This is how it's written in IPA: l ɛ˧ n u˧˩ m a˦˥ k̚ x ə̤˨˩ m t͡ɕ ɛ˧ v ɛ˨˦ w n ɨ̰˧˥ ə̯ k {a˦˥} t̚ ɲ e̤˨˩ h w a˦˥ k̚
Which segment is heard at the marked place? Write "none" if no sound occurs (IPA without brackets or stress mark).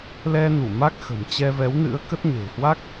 ə˦˥